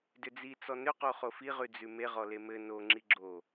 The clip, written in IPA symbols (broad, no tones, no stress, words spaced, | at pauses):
dʏd͡zi t͡sɔnʏqo χofiʁʉ d͡zʉme ʁɔlemɘ noŋ͡ǁi ɡ͡ǁo